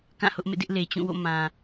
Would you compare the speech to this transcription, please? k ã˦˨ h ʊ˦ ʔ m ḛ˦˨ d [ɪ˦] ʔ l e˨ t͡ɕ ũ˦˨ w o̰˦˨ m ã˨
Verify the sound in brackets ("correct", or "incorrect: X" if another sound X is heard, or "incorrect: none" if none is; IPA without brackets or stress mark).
correct